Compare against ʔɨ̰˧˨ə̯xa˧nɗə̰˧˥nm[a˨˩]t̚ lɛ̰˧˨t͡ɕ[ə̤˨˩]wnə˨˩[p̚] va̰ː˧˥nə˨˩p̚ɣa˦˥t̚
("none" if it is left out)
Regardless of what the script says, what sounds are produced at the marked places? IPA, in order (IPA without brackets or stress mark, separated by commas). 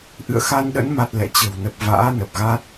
a˨˩, ə̤˨˩, p̚